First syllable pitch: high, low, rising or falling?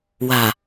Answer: low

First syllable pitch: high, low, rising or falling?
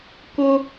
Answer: high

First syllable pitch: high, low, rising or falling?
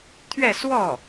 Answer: falling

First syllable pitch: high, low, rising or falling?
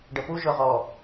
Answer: low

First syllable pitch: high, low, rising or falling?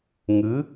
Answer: rising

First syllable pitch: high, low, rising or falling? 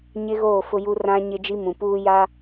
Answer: high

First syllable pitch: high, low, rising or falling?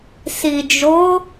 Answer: low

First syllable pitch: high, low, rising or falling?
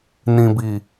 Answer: low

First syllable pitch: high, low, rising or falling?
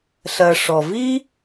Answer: low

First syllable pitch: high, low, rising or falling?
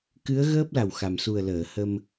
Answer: rising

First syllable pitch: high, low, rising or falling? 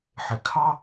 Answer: low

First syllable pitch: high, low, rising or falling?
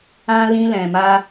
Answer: high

